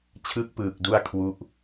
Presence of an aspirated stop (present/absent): present